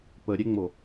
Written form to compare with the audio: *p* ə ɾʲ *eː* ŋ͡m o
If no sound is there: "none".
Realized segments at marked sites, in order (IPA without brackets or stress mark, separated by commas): p, e